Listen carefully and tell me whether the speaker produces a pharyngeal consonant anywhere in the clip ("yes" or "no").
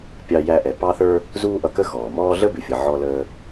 yes